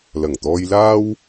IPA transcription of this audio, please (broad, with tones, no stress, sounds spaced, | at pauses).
l ɐ˨˩ ŋ t̪ ɔː˧ j l aː˥ w